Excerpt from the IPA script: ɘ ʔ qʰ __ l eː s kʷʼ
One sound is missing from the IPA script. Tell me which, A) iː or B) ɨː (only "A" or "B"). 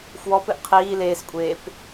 A